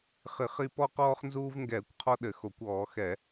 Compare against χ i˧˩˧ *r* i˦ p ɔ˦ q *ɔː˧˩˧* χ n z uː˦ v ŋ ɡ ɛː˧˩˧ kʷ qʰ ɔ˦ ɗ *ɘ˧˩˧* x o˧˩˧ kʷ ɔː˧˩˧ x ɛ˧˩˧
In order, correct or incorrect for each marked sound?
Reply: incorrect: χ, incorrect: ɔː˦, correct

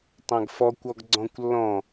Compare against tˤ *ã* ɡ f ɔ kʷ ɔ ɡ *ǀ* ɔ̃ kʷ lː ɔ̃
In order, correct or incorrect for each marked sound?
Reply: correct, incorrect: ɡ͡ǀ

